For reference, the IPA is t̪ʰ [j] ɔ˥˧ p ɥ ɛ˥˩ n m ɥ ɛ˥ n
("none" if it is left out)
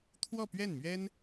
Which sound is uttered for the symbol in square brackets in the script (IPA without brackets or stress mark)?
w